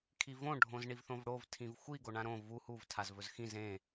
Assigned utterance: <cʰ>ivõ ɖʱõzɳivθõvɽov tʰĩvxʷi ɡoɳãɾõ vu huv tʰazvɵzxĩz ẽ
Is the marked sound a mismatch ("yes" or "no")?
yes